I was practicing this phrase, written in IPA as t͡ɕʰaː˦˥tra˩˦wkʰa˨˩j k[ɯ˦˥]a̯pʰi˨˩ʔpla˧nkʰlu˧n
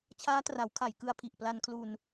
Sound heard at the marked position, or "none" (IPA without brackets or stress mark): ɯ˧